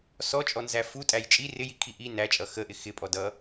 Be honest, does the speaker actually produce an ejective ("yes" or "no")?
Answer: yes